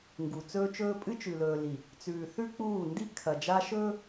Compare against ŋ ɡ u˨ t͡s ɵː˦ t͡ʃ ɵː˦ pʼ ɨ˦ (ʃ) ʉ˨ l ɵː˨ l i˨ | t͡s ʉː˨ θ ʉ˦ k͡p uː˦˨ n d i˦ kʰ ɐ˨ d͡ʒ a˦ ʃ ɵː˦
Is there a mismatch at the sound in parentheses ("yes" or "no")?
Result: yes